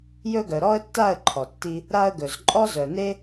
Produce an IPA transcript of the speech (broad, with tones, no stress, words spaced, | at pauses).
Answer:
jɵ˥ɡœ˨ ɾɔ˥ə̯tːa˥˧ə̯ ǃʰɔ˨tːi˥ | ɾa˥ə̯ɡɵ˨z ǃʼɔ˥zœ˨ne˥